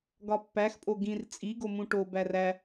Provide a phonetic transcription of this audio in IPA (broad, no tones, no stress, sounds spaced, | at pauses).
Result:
ɡ ɒ pː æ x pʼ o ɡ ĩ r t͡sʼ i ɡ o m ũ ʈ o b æ r æ